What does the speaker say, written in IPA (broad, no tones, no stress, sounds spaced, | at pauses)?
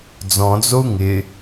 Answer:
d͡z ɔ̃ d͡z o u̯ ŋ ɪ